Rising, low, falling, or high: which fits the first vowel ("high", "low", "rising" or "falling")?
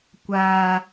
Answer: high